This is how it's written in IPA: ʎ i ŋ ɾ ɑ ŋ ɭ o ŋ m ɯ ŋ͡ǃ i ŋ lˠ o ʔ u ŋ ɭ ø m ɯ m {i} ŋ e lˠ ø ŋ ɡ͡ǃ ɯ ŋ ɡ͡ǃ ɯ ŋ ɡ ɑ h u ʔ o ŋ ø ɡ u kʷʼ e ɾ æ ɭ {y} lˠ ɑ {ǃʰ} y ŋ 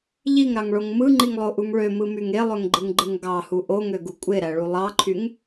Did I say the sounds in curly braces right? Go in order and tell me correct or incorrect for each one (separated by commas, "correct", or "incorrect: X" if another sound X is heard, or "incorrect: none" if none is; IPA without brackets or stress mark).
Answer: incorrect: y, incorrect: u, correct